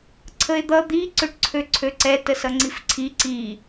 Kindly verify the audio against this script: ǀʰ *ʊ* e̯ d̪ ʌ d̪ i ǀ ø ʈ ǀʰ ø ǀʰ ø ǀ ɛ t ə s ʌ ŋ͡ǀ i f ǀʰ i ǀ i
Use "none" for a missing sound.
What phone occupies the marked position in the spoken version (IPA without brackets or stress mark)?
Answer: ə